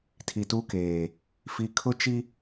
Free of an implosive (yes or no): yes